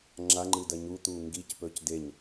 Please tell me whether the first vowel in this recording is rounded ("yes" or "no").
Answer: no